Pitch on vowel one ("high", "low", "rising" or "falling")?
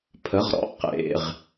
rising